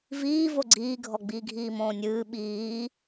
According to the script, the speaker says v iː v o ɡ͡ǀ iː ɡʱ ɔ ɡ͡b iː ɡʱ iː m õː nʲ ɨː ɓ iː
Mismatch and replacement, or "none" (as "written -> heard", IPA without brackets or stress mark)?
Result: none